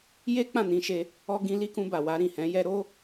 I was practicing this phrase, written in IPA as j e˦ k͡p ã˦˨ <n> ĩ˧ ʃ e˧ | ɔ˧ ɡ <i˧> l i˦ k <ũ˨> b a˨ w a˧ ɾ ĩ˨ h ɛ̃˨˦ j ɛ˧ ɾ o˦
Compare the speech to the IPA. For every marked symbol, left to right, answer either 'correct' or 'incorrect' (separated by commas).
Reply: correct, incorrect, incorrect